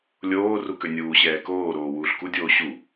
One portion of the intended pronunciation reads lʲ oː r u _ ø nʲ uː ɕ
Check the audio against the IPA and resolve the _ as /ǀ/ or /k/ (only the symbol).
k